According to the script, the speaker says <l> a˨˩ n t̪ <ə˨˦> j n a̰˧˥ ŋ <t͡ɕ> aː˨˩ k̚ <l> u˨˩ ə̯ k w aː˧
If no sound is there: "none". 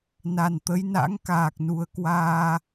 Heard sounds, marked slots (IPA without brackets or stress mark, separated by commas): n, ə˨˦, k, n